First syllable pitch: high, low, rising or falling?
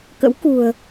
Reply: rising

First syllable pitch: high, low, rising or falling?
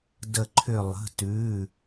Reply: falling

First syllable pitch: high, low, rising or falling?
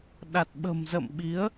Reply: low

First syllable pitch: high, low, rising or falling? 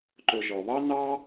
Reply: low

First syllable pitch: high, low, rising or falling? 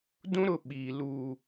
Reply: high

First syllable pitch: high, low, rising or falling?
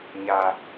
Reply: low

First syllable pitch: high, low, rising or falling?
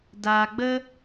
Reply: low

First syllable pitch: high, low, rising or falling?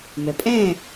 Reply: low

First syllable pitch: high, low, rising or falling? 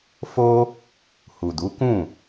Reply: high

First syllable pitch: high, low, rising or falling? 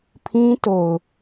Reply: high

